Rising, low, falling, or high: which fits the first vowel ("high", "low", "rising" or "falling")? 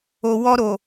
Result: low